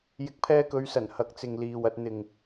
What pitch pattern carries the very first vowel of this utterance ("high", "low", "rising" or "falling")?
rising